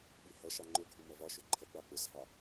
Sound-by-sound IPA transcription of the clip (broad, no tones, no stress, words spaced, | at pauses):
ɓihʌʃɑ ŋ͡ǃʊ ɡʱumʌvɒʃʊ ǃʰʌɡ͡bɑ k͡pʊsɦɑ